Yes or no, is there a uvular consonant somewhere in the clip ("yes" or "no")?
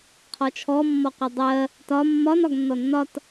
yes